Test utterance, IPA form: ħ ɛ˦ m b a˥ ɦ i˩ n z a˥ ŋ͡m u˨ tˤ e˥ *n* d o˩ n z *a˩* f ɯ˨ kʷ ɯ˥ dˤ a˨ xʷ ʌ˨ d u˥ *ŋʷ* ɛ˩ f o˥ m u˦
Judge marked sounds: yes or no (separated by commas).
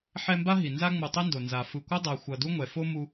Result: yes, yes, yes